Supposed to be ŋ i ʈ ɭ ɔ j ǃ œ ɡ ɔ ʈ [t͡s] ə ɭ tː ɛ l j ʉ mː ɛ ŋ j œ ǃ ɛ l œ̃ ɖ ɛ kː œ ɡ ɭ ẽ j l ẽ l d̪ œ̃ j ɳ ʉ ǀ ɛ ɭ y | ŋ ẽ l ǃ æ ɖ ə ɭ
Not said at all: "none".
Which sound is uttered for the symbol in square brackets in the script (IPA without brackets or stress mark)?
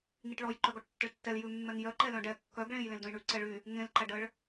tː